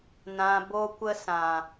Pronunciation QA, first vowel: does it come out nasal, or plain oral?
nasal